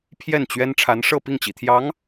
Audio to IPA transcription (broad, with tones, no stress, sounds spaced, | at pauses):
pʰ j ɛ˥˩ n t͡ɕ ɥ ɛ˥ n ʈ͡ʂʰ a˧˥ n ʂ ɤ˥˧ p i˥˩ ŋ t͡ɕ ḭ˨˩ t̪ʰ j ɑ˧˥ ŋ